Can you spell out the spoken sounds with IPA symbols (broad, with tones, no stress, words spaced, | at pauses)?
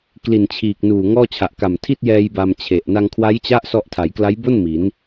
kli˨˩nt͡ɕʰiː˨˩k̚ nuː˨˩ ŋɔː˥˩t͡ɕʰa˨˩ʔ ka˨˩mtʰi˥˩t̚ jɛː˧j ba˧mt͡ɕʰe˨˩ʔ na˧ŋkʰwa˦˥jt͡ɕa˦˥ʔ sɔ˥˩ʔ tʰa˩˦jkla˦˥jbo˥˩n mi˩˦n